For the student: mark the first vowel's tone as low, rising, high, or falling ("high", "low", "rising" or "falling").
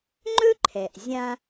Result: high